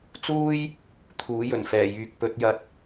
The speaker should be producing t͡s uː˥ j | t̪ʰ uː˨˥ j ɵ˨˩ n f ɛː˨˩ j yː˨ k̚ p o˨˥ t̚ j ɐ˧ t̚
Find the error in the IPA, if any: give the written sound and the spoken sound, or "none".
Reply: o˨˥ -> ɵ˨˥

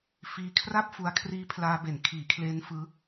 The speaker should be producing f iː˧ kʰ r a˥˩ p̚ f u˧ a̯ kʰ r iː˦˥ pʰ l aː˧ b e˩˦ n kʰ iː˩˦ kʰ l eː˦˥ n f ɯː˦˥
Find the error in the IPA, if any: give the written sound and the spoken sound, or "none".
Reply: none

